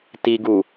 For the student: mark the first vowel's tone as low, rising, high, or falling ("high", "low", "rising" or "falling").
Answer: low